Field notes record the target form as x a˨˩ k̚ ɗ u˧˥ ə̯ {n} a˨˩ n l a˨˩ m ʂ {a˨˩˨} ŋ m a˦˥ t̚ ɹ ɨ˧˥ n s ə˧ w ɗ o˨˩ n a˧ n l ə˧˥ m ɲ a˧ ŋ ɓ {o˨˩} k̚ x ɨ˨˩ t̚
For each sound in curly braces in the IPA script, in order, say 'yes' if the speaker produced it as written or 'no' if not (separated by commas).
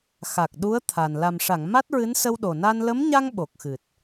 no, yes, yes